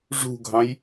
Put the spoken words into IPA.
ʐṳɡʱɑ̃j

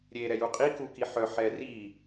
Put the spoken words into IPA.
ɾʲe ɾɛjuqʼi kukiħœ ħɛri

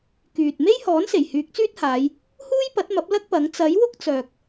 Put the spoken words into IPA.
kyː˨t̚ me˥jhɔː˨˥n se˨˩jhyː˨˥k̚t͡syː˥t̚haː˨˧j | huː˥jpɐ˨˥t̚mɐ˨˥p̚ lɐ˥k̚pɐ˨˥ŋ t͡sɐ˨˥jwʊ˥k̚ t͡sœː˨k̚

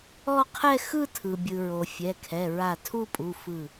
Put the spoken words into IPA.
ɔ˥˧qʰɛ˥˧ xɯ˥˧tʰɯ˩bʲɯ˩ɹo˩ fʲɛ˩˧˩kʰɛ˩˧˩ ɹa˧˩tʰu˥˧pʼu˩˧˩ fɯ˧˩

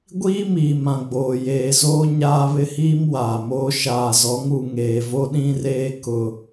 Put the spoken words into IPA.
ɡʷiː˦miː˨mã˨ ɡ͡boː˨ jeː˨zoː˦ ɲaː˦βɪ˦hiː˦m waː˨moː˦ ʃaː˨zɔ˨˦ŋu˨ ŋeː˨vo˦ɗĩ˦reː˦ kʊ˦

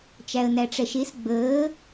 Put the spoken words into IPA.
t͡ʃæə̯næʈ͡ʂɛʃes ɡ͡bəː

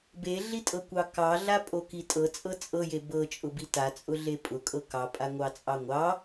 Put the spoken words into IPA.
beɮitʼɤkʷɑ kɑɮapʼoki tʼɤt͡sʼɤ t͡sʼɤje bɤt͡ʃʼʊbi tat͡sʼʊɮe pʼʊkʼɤ kɑpʼaŋʷɑt͡sʼɑ ŋʷɑ

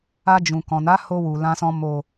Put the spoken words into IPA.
a˧d͡ʒũ˨ kɔ̃˨na˨˦ho˧ wu˨lã˧sɔ̃˧ mo˨

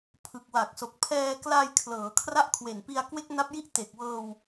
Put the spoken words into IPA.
pʰɯ˨˩k̚wa˨˩k̚so˨˩k̚ pʰɛː˧kla˧j kʰlɤː˩˦kʰra˥˩ʔkʰwe˨˩npi˧a̯ kwe˥˩k̚na˦˥p̚ji˥˩ʔ te˨˩k̚wɤː˧w

